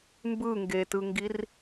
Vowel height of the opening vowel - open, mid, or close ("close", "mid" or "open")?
close